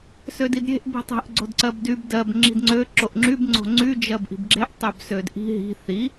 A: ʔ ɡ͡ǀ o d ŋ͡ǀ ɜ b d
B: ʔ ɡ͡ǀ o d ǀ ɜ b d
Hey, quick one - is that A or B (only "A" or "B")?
B